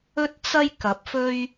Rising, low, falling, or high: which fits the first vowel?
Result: high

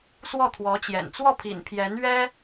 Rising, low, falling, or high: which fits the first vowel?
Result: falling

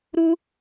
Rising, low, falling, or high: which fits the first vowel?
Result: high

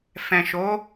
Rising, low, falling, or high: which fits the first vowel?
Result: low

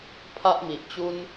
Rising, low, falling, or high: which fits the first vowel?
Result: high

